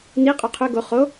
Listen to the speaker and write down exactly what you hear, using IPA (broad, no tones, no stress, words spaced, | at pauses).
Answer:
ni qʼuqʰø ɡo χo